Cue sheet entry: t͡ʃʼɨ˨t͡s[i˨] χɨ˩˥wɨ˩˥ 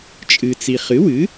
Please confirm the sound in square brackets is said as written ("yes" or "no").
yes